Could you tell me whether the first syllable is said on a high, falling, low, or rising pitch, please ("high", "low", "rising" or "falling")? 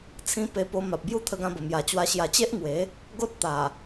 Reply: high